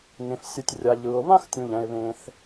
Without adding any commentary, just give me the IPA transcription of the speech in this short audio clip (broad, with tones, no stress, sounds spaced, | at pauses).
ŋ ẽ˩ f sʲ ɯ˩ tʲ rʲ a˩ ʎ ɯː˩ ʊ̯ β ã˥ x tʲ ũ˩ ʎ ɛ̃˩ ɪ̯ β ẽ˩ θ